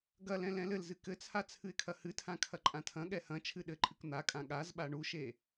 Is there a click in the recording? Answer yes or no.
yes